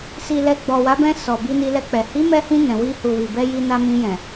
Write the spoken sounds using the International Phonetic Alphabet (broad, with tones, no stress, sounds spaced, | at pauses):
s i˨ l ɛ˨ ɡ͡b ɔ˨ w a˨˦ b ɛ̃˧ s ɔ˨ b i˧ n i˧ l ɛ˧ k͡p ɛ˨ h i˨˦ m ɛ˧ h ĩ˧ n ɛ̃˨ w i˧ h u˨ w i˨ b ɛ˧ j i˧ n a˧ m ĩ˧ j ɛ̃˨